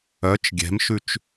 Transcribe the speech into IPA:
œ t͡ʃ ɡʲ ɛ̤ m ʃ ʉ t͡ʃ

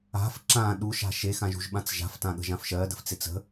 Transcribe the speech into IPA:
a̤ f ǁ ã ɗ u ʃ a̤ ʃ e x ã ʒ ṳ ʒ ɓ ã t͡s ʒ a̤ f t ã ɠ ə̤ ʒ ã f ʃ ɜ d ə̤ f t͡s e t͡s ə̤

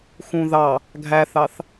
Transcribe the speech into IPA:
x ũ ð ɑ | ɡʱ æ θ ɑ θ

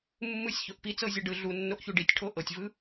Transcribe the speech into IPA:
mː ɯ sʲ ç o ʔ p i t͡s ɤ zʲ ɤ ɖ ɯ ɮ u nː o ʔ ç u ɖ i tʲ ʈʰ o ʔ ɤ tʲ v ɯ

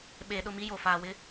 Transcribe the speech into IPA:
ɓ eː˨ ɗ ʊ˦˨ m i˦ j o˨ f aː˨ w ɪ˦

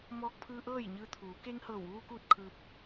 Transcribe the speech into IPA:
m ɔː˧ k̚ pʰ ɯː˧ ʔ ɤː˥˨ j ɲ ɯː˧ t̪ʰ uː˩˧ k eː˧ ŋ h ɤː˧˩ w ʋ uː˧ k uː˥˨ t̚ kʰ ɯː˧ p̚

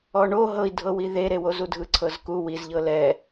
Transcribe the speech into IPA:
ɔ ɳ o ɦ ɤ i̯ dʱ ɤ w i ð e ɾ e w o z u dʱ ɯ ǀʰ ɤ z k u w i z ʎ ɤ l ɛ

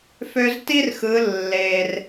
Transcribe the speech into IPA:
f ø˧ z t i˥ r x ɯ˩˧ lː e˩ r

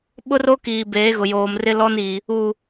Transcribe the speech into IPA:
ɓ ʊ˦ r o˦ k iː˨ b eː˨˦ ɣ ʊ˨ j oː˨ m r ɪ˦ l ɔ˦ n i˨ | u˨

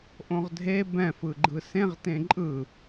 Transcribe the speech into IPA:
ʔ õ ʁ dʱ e b ɛ̃ f ɯ ɡ͡ǃ ɯ s ẽ ʁ t ẽ ǃʼ ɯ

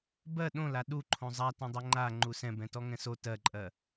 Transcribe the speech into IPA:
b ɜ ɗ õ l a ɗ u ǃʰ õ zˤ a t ɛ̃ dˤ ɜ ŋ͡ǃ a ŋ͡ǃ u s ɛ̃ b ɛ̃ t ɔ ŋ ɛ̃ s o t ɜ ǃʼ ɜ

